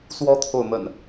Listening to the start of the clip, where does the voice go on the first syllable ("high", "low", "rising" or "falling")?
high